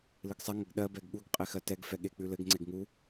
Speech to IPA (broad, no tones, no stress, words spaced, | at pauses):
lɨɡsˤɛ ŋəɡɗɜ bɛɡɠuɡ qʼexɜtɛɡ fɛɠek͡pʉlɘɡ ŋ͡ǀeɡŋu